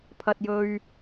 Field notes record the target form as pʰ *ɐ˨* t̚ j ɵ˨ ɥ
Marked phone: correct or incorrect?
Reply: correct